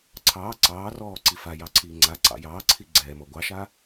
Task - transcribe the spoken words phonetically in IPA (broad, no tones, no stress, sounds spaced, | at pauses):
ǀʰ ɑː ǀ ɑː r ɔː ǀ i f a j ɑ ǀʰ iː ŋ͡ǀ a ǀ ɑ̰ j ɑː ǀʰ i ɡ͡ǀ ɛː m ɔ ɡʷ ɑ ʃ a